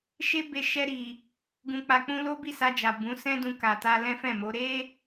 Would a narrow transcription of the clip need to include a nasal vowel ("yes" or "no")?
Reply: yes